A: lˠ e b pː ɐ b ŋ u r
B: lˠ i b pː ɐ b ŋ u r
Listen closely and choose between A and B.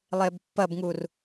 A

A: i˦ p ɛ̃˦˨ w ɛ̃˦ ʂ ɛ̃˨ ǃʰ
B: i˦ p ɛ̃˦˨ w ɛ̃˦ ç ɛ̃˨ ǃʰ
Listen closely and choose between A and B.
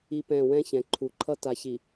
B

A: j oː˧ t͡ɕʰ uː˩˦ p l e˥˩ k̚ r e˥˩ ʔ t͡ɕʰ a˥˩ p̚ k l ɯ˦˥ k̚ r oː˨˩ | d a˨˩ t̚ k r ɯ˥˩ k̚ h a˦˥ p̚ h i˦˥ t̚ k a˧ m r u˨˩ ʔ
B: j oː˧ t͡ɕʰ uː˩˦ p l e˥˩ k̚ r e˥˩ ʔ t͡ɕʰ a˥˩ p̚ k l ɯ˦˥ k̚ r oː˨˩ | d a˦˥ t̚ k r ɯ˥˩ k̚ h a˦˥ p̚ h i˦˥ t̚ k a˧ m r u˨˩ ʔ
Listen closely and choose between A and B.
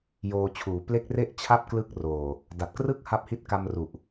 A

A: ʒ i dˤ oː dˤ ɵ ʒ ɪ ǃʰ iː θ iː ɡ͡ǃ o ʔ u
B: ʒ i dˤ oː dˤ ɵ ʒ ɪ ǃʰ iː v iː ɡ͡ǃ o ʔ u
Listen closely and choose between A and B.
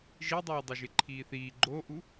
A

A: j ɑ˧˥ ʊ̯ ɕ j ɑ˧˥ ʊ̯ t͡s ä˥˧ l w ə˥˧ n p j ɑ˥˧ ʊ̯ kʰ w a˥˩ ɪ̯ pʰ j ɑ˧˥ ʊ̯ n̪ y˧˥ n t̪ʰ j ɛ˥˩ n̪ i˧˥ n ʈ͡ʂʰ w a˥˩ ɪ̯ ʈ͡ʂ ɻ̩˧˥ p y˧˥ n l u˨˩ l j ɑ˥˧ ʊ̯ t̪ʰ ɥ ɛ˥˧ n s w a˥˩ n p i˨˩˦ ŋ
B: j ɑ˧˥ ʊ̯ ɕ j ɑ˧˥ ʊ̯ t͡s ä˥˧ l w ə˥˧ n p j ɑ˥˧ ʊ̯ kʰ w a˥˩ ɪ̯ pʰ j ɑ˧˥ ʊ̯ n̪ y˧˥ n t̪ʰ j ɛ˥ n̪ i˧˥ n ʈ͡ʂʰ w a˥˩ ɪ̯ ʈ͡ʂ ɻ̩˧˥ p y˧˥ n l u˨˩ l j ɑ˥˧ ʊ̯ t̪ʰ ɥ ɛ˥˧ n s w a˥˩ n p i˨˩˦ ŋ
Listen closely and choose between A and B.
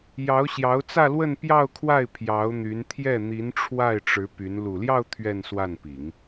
A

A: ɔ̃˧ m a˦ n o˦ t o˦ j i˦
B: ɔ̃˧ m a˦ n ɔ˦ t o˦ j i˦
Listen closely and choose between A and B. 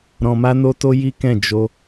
A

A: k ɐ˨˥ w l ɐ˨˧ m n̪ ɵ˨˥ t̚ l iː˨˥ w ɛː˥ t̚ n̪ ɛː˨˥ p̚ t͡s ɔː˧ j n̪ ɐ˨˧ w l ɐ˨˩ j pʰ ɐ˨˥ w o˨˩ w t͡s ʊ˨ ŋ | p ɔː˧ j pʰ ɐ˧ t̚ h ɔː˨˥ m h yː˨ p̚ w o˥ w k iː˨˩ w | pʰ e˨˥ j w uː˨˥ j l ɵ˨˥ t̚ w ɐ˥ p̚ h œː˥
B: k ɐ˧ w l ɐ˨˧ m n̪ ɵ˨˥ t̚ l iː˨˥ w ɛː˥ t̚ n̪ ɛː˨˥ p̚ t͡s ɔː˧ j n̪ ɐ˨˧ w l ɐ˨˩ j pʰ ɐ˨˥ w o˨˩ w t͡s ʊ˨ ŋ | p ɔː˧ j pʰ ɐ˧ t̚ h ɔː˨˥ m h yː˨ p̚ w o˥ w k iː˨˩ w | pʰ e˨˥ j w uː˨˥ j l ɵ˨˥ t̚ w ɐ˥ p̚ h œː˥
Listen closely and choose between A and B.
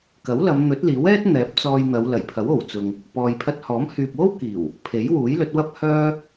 A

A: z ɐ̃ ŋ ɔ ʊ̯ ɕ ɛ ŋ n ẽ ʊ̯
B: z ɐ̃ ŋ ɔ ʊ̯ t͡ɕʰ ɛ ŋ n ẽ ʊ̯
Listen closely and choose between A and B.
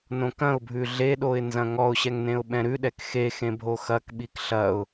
A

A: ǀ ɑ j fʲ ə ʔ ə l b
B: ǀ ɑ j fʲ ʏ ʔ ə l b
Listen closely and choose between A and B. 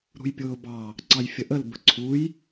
A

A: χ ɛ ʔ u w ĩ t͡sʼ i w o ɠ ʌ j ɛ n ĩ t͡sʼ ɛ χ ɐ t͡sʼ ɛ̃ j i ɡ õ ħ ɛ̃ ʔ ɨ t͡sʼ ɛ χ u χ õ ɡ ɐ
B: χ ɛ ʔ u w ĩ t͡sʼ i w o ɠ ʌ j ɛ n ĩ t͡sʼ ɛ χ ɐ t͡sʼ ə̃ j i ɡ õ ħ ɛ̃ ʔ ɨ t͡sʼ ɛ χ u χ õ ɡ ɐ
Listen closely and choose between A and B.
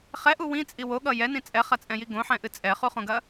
A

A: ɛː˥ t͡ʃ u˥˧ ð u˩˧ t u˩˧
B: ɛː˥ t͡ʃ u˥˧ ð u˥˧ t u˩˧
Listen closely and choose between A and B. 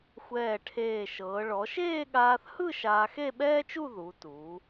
A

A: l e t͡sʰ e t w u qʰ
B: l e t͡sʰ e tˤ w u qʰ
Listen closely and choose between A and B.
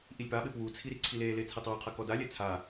B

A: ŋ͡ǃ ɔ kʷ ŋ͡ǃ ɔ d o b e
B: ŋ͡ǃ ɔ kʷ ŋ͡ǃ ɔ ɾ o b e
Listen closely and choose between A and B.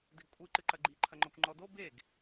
A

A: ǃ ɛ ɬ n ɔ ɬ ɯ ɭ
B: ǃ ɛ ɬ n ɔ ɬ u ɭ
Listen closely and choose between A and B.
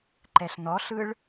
A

